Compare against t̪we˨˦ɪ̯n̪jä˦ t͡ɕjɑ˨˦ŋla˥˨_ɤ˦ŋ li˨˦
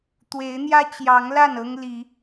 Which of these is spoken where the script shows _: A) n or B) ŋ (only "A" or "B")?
A